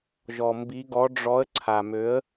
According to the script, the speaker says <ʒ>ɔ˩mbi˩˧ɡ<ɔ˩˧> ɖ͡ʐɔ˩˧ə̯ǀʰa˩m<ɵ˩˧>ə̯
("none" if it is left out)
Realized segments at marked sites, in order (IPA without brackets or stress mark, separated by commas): ʒ, ɔ˩˧, ø˩˧